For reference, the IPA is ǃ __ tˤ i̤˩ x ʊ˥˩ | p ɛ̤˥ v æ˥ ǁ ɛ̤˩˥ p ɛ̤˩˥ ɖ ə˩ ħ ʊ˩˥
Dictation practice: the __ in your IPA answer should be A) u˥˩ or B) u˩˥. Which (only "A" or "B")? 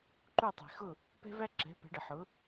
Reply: A